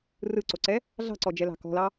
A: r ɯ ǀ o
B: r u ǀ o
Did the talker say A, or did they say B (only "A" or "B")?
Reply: A